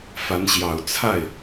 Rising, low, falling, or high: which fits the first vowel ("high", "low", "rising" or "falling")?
rising